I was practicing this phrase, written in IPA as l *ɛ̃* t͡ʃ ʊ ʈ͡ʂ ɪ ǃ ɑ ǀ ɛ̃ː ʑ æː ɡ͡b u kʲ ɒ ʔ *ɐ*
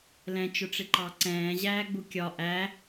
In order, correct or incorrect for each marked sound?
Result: correct, incorrect: æ

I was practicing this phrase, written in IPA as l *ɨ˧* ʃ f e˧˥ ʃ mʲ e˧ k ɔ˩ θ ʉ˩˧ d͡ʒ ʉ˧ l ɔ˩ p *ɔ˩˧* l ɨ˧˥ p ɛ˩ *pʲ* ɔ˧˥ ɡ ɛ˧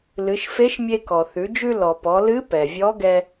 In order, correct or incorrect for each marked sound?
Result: incorrect: ɨ˩˧, correct, incorrect: vʲ

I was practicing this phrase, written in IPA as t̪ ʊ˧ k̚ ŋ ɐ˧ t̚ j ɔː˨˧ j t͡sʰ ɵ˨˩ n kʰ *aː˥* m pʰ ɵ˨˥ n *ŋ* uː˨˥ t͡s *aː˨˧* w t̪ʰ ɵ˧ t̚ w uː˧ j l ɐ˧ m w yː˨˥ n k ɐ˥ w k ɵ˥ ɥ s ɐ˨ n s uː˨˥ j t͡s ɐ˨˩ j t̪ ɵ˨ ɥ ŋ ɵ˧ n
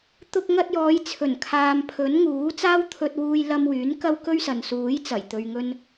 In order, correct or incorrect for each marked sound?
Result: incorrect: aː˨, correct, incorrect: aː˥

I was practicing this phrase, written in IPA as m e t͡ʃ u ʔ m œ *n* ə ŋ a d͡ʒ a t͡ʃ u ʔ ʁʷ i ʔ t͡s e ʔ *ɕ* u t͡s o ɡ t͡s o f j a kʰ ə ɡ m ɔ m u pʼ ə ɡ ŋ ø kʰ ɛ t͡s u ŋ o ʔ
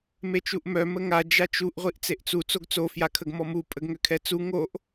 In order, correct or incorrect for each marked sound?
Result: incorrect: m, incorrect: t͡s

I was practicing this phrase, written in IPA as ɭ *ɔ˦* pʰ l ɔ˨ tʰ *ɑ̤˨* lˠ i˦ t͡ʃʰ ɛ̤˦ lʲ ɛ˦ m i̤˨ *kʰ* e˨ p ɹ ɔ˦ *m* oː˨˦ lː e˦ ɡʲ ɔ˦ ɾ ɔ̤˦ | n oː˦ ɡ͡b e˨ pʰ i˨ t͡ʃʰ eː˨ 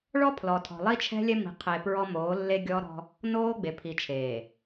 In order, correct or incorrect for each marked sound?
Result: correct, incorrect: ɔ̤˨, incorrect: qʰ, correct

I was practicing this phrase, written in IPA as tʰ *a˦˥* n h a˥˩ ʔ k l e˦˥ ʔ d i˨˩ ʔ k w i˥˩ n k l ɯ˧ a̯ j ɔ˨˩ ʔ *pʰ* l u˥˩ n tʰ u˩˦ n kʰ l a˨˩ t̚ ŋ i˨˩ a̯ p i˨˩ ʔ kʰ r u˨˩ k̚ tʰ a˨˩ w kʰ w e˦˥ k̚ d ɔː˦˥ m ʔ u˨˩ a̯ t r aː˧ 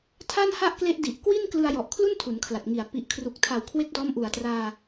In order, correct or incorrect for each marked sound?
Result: incorrect: a˥˩, incorrect: kʰ

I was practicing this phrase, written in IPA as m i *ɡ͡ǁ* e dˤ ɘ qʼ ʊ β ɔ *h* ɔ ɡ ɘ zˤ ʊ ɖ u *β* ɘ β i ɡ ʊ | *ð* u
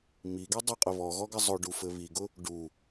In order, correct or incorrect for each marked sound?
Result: incorrect: ɡ, incorrect: ɣ, incorrect: f, incorrect: ɖ

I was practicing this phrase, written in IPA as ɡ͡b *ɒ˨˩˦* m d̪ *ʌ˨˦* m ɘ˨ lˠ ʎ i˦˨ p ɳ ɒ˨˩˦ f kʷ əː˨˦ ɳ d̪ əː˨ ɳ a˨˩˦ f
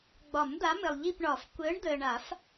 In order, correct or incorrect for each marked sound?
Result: correct, incorrect: a˨˦

